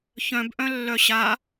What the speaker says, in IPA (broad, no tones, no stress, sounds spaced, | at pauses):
ç œ̃ b ʔ œ̃ lː œ ɕ a